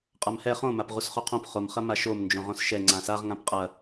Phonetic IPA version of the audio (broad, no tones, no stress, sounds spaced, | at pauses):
qʼ a m h ɛ χ õ m a p ʁ u s χ o qʰ õ p χ o m χ ɐ m a ʃ o m n d͡ʒ õ ʁ õ s ʃ ɛ ŋ͡ǀ ã s a ʁ ŋ ã p qʼ ɐ